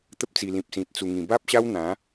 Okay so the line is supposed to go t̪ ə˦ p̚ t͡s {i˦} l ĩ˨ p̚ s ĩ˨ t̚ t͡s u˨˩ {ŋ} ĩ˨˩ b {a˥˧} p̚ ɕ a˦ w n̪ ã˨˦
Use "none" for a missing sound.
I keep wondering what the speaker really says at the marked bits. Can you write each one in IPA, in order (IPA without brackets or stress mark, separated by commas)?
i˨˩, ŋ, a˦